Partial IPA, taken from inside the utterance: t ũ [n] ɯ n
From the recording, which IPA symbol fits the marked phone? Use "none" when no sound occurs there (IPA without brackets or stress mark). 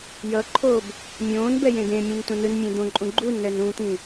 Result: n